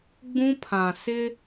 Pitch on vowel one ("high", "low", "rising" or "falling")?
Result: high